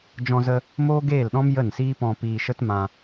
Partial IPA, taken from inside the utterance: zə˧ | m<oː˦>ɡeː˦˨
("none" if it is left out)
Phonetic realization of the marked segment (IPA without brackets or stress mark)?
oː˦